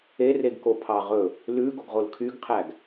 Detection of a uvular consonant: present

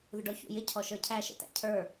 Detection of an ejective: absent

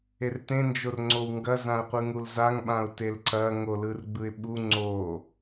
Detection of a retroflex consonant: absent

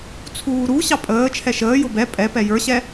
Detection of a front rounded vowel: absent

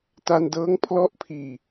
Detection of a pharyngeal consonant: absent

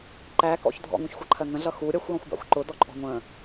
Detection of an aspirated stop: present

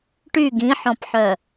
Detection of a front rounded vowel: present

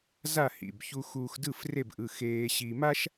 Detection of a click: absent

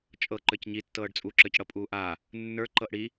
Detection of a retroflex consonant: present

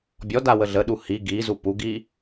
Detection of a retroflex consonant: absent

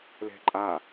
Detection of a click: present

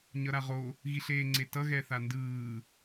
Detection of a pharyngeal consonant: absent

